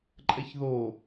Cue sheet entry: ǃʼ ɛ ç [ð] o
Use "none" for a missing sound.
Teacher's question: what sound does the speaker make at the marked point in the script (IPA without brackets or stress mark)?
ð